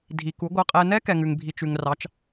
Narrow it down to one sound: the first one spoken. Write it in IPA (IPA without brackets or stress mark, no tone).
dʱ